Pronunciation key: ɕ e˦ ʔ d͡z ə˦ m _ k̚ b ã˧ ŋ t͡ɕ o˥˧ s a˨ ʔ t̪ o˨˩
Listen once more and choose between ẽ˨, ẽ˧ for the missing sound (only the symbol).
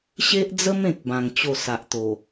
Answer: ẽ˨